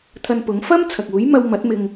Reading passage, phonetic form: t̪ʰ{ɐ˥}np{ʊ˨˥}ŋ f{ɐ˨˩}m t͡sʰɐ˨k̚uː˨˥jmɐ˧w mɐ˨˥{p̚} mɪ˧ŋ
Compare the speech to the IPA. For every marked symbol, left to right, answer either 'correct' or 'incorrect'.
incorrect, correct, incorrect, incorrect

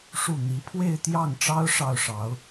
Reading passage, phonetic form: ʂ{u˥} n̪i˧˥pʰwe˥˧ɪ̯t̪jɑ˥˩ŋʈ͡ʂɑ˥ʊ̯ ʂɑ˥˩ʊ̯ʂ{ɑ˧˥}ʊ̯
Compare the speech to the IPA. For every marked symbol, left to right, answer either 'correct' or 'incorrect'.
incorrect, correct

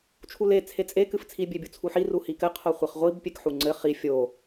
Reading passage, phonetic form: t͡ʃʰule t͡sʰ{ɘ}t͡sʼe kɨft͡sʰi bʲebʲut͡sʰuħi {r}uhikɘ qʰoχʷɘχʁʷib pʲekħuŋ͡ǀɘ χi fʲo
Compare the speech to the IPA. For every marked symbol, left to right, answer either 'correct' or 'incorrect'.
incorrect, correct

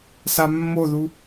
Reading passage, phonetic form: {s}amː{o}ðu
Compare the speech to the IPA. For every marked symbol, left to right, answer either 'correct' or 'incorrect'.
correct, correct

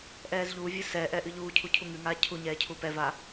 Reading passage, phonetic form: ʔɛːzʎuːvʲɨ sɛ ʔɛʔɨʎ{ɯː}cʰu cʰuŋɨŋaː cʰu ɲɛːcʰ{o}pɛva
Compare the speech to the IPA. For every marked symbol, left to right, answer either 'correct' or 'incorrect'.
incorrect, incorrect

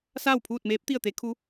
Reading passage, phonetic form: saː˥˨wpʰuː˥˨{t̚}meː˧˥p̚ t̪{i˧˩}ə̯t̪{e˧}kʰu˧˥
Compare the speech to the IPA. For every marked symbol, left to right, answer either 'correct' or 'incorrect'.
correct, incorrect, incorrect

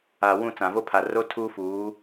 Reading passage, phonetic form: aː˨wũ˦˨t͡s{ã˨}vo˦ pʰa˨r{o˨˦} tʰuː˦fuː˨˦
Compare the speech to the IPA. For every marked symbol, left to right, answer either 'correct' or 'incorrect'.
correct, incorrect

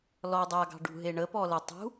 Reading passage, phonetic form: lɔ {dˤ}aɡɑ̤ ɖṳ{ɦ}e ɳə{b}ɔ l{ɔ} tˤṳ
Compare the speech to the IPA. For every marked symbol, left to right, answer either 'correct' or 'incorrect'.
correct, correct, incorrect, incorrect

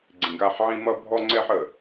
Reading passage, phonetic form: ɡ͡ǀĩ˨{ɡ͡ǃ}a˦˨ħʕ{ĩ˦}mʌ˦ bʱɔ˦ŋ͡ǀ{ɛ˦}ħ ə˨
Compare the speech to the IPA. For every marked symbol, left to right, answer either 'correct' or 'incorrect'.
incorrect, correct, correct

